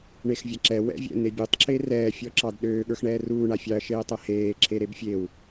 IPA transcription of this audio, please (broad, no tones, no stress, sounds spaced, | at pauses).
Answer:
ɳ e x vʲ a ǁ ɛ w ɛ̰ vʲ ɛ̰ n̪ e bʲ u tˤ ǁ e r ɛː fʲ ɔ ǁ ɑ d ɗ øː ɠ ə˞ x ɳ ɛː r uː ɳ a fʲ ɑ ɐ̯ ʃ eː tˤ ɛ h eː ǁʰ e ɾ e b fʲ e w